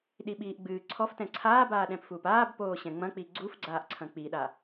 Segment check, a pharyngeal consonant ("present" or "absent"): absent